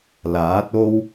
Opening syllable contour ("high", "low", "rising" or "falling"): rising